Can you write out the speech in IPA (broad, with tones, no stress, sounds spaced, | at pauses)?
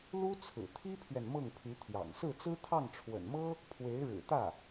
l u˥ t͡sʰ ɹ̩˨˩ t̪ʰ i˥ pʰ ɥ ɛ˨ n m ɤ˥˩ ŋ pʰ y˧˥ t̪ʰ j ɑ̰˨˩ ŋ s ɹ̩˥˩ t͡s ɹ̩˥ t̪ʰ ɑ˥˩ ŋ ʈ͡ʂʰ w ə̰˨˩ n m ɤ˥ | pʰ w e˧˥ ɪ̯ ɻ ɻ̩˨˩ t̪ ä˥˩